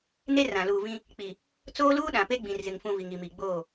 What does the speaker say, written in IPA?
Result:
ne˦rã˨ luː˨vĩ˦ | k͡pi˨ | t͡soː˦luː˦ɗã˨pe˦ ɡ͡bĩ˨rzɪ˨ŋfũ˨ vi˨ŋi˨mi˨ɡ͡boː˦˨

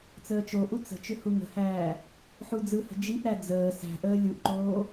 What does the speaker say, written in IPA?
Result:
t͡səːt͡ʃoʔu t͡sə̤t͡ʃʏ huŋə̤hæː | ħud͡zɯhə̤ d͡ʒiʔɾæ d͡zəː sæ̤ʔəː lʲuʔǃoː

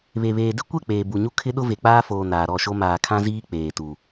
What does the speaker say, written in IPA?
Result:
βe˨βeː˨ dɪ˦kʷɛ˦˨ k͡peː˨bu˨ɲu˦ kʰɪ˦ɗʊ˦ve˨ k͡paː˦foː˨ naː˨ɾɔ˦˨ʃo˦ maː˨kʰã˦ziː˦ k͡peː˨tu˨

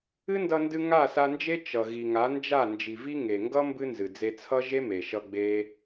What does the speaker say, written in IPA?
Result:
ɨ˦ndʌ˧ndɨ˧ ŋa˦˨sa˧nd͡ʒe˦ t͡ʃʌ˨ ɣi˨ŋa˨˦ nd͡ʒa˦˨ nd͡ʒi˨vi˦ ŋe˨ŋɡʌ˦ mbɨ˦nzɨ˨d͡ze˧t͡sʰʌ˦ ʒe˦me˨ʃʌ˧ ɡ͡be˦

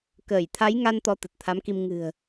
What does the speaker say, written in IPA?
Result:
kəː˧˩jt̪ʰa˨˦jŋa˧n t̪ɔ˨˦t̪ə˨˩t̚t̪ʰa˨˦mki˧m ŋɨ̤˨˩ə̯

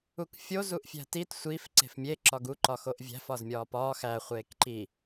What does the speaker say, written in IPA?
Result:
ukfʲo zuʔfʲæ̤tit sʷiːf ǀe̤fmʲe ǁɒɡu ǃɒxoʔvʲæ̤f ɒzmʲɒːpɒː xæ χʷeːkǃi

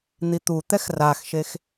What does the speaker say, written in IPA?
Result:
n̪it̪ut̪ɛx raxʃex

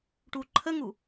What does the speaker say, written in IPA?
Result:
ʈuǃʰəŋu

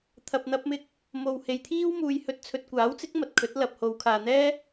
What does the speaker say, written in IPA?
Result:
t̪ʰɐ˧p̚n̪ɐ˥p̚mɪ˥k̚ | mo˨whe˨˧jt̪ʰiː˥w muː˧j hɵ˧t̚t͡sʰɵ˧t̚ kʷaː˨˥wt͡sɪ˨˥k̚ mɐ˨t̚kʰɵ˨˥t̚ lɐ˨p̚ho˨˧wkʰaː˨ n̪ɛː˥

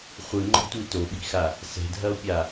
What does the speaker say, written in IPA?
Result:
χʷɨŋ͡ǃɔ̤tʷi toɓi̤xa | sɛ̤dʱɐo̯pʲa

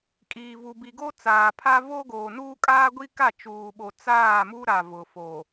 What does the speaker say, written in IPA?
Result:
kʼiː˨vu˨bi˨ɡo˦ t͡saː˨pʰa˦ vo˦ɡoː˨nuː˦ kʼaː˦ɡʷi˦ka˦˨ t͡ʃuː˨ɓo˨ t͡saː˦˨mu˦ ɾa˨ vʊ˨fo˨

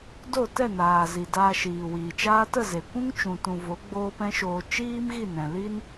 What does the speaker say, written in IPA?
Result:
do˦˨tɛ˦˨naː˨ zi˨daː˧ ʃiː˨wiː˨t͡ʃaː˦ tə˦˨ze˨kʷũ˦ŋ t͡ʃũ˨tũ˨ vo˨˦ɡ͡boː˦pɛ̃˦ʃoː˧ t͡ʃiː˦mɣi˦˨nɛ̃˨ li˦n

